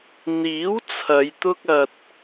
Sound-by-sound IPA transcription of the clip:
n̪iː˨˥w t͡sʰɐ˨˧jt̪ʊ˥k̚ɐ˧t̚

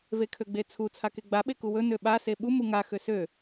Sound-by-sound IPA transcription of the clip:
vekʰøɡ͡bet͡sʰu t͡sʰakeɡ͡ba ɓekuwɵ nøɓa seɓu muŋa xøsø

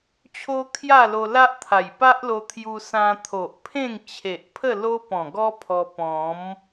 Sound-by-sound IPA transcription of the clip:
t͡ɕʰo˦kʰja˥˧ lo˧la˦ʔt̪ʰa˨˩j pa˦ʔlo˧ t̪ʰju˧sã˧t̪ʰo˨ʔpʰẽ˥˧ŋ t͡ɕʰe˨ʔpʰə˥˧ lo˦pɔ̃˨˩ɡɔ˦ pʰɔ˧pɔ̃˨˦m

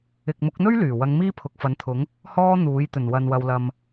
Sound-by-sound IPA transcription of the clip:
ɪ˨k̚mʊ˨˥k̚n̪ɵ˥ɥ lyː˨˩ wɐ˨˧ŋ miː˥pʰʊ˨k̚fɐ˨˥nt̪ʰʊ˨˥ŋ | hɔː˥n̪uː˨˥j t̪ɵ˨˩nwɐ˨nwɐ˨wlɐ˨m

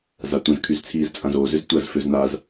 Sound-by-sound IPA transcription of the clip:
zatʷə̃z kʰyzt͡sʰiːzt͡sʼãzoːz ʏztʷɐz føznaz

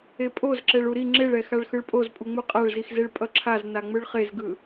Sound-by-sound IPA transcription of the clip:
epʼoz ǁɛɭuɾi ŋ͡ǁeɭɛ xaɭxɯɭpʼozpʼu ŋ͡muqʼaɭzixzeɭ pʼʌǁʰaz naŋ͡mɯɭχezɡɯ

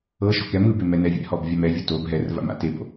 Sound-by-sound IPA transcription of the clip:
ɤ ʃɔ̤kɛm ɯbe mɛnɛvʲɛ̰hɔb vʲamɛvʲo tob ɦɛrva̰m a̰ tebo̰

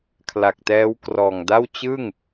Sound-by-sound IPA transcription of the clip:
kʰla˨˩k̚tɛː˦˥w krɔː˨˩ŋda˥˩w t͡ɕɯ˥˩ŋ

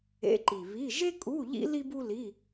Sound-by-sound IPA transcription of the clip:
ḛ˧˥˧ǃi˨˩ βi˧˥˧ ʒe˥ kʼu˧˥˧ʎḭ˥ li˥bu˥ li˧˥˧

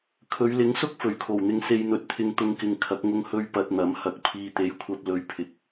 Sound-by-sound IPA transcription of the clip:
kʰɵ˨˧ɥlɪ˨˥ŋsʊ˥k̚ fɵ˨˩ɥkʰo˨˩wn̪ɪ˧ŋ se˧jn̪ɵ˨t̚t̪ʰɪ˧ŋ t̪ʊ˧ŋkɪ˨ŋ kʰɐ˨˥k̚ ŋʊ˧ŋhɵ˧ɥ pɐ˧t̚n̪ɐ˨˥m hɐ˨k̚ pʰiː˨t̪e˨˥jkʷʰɐ˧p̚ lɵ˧ɥpʰɪ˨k̚

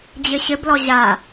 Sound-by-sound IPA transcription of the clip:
d͡ʑɘɕɘblɔ ʑa

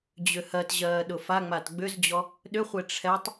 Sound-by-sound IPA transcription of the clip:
d͡ʑʏhɜtʑɜː ɗʊfaŋ͡mat ɡ͡bʏzd͡ʑɔ | ɗʏχʷe ʈ͡ʂʰɛtˤ

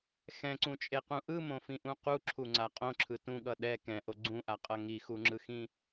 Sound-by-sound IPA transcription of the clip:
xɛ̃ǀũt͡ʃʼeqũ ʔɯmõfĩʔũ quǁʰuŋ͡ǀa qʼõǁʰɯ tũɠʌ ɗɛ kɛ̃ʔo ɡ͡ǀũʔaqʼʌ ŋixuŋ͡ǁɯxĩ

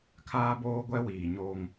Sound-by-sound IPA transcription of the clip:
kʰaː˦boː˦ɡʷɛ˦wiː˨ ɲoː˦ŋ

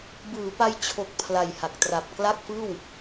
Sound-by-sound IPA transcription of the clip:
bɯː˩˦pa˧j t͡ɕʰo˨˩k̚ pʰla˨˩jha˨˩k̚tra˨˩p̚ kla˥˩k̚fɯː˥˩w

